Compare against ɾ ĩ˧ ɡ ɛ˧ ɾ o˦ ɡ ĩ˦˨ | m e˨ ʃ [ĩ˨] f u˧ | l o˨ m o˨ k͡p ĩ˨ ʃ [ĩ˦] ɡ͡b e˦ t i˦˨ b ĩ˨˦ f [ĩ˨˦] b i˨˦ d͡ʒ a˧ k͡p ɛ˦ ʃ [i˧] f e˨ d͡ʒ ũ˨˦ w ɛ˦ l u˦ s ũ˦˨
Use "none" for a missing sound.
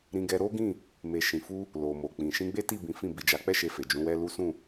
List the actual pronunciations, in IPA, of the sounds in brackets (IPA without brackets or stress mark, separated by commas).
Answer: ĩ˨, ĩ˧, ĩ˦˨, e˧